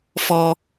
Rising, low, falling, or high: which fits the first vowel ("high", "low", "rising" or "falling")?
high